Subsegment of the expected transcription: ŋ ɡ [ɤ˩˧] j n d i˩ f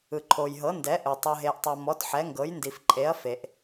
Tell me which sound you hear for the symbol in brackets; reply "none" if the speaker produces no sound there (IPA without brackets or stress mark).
ɤ˩˧